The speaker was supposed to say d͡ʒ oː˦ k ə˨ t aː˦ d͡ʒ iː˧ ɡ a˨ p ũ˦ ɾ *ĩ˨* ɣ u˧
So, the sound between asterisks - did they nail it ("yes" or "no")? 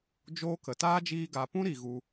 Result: no